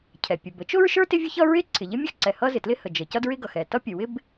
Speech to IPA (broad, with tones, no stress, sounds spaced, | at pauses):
cʰ ɛ˩ pʲ ʊ˩ b ə˥ t͡ʃ ʊ˥ ɹ ʃ ə˞˥ t ɪ˥ vʲ ʊ˥ ç ʌ˥ ɹ ɪ˥ ǀʰ ɪ˩ ʎ ɪ˥ mʲ ʊ˥ x ǀ ɛ˩ h ʌ˥ z ɪ˩ t l ɪ˥ h ə˩ d͡ʒ ə˩ c ʌ˥ d ɹ ɪ˥ ɡ ʌ˩ x ɛ˩ t ʌ˥ pʲ ə˩ w ɪ˥ b